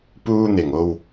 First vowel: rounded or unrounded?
rounded